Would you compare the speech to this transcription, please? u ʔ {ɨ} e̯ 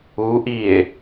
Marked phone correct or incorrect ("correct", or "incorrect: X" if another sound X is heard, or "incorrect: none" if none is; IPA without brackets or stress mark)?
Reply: incorrect: i